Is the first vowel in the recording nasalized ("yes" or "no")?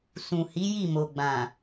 yes